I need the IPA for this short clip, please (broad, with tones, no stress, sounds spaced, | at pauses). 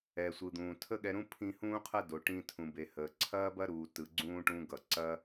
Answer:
ɛ˨ sʷ ɯ˨ d̪ ũː˨ tʰ ə˦ ɠ ɛ˧ ɾ ũ˦ pʰ ĩ˧ h ũː˦ qʰ ɐ˦ d o˨ ʈ ĩ˧ tʰ ũ˨ b e˨ h əː˨ ǀʰ ɐː˦ b ɐ˦ ɾ uː˨ t ɯ˨ ɡ͡ǀ ũː˧ ʈ ũ˧ ɡ ʌ˨ ǀ ɐː˦